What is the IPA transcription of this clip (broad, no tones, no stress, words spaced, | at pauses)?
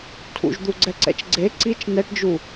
tʰṵʒd̪uɡ͡ǀɛǀɛ̰t͡ʃ ɡ͡ǀe ǀit͡ʃ nɛʈd͡ʒu